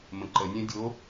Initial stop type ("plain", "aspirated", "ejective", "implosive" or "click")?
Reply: click